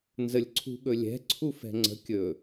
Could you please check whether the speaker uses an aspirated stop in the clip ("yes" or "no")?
yes